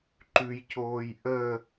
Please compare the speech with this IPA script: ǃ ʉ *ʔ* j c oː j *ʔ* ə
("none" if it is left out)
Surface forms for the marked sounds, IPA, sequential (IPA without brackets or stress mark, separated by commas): none, ʔ